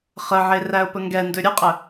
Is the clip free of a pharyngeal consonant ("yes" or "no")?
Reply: no